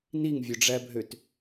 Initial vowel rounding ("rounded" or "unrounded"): unrounded